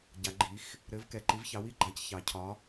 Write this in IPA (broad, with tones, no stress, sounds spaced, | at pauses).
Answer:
ɟ a˩˧ ɡ͡ǃ i˩˧ x | ɾ ɘ˩˥ v k ɛ˩˧ ǃ i˩˥ v ç ɑ˩˥ w i˩˥ ɡ͡ǃ a˩˥ c ç ɑ˩˧ cʰ ɒ˩˧